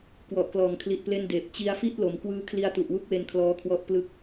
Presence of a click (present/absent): absent